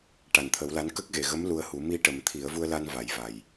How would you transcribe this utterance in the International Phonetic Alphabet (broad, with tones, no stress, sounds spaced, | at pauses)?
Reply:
ʈ a˨˩ n t̪ʰ ə˨˩˦ w l a˧˥ n k ə˦˥ k̚ ɣ e˨˩ ɣ ə˧˥ m l u˧ ə̯ h u˨˩˦ m i˧ ʈ ə˨˩˦ m t̪ʰ i˨˩˦ ə̯ v u˧ ə̯ l a˧ n v a˨˩˦ j v a˨˩ j